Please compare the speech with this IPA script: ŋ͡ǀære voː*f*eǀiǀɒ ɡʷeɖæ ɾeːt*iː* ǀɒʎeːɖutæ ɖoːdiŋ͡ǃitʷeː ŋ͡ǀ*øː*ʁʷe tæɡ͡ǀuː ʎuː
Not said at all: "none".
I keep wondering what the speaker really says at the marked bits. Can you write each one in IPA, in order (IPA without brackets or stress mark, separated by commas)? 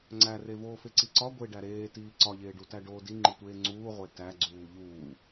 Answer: f, iː, uː